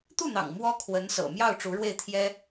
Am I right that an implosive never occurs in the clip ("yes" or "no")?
yes